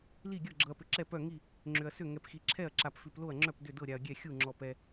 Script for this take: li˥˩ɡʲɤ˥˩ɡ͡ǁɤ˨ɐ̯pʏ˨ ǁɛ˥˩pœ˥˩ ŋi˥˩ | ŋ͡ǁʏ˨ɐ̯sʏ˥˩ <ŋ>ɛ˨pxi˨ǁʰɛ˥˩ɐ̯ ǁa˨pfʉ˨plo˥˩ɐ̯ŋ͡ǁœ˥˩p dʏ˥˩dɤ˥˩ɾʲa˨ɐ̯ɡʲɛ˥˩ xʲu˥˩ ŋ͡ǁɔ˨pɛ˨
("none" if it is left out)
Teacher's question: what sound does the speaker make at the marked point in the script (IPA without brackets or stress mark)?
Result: ŋ